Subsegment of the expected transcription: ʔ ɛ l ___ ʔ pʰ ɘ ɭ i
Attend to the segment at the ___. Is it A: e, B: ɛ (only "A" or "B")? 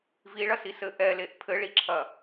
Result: A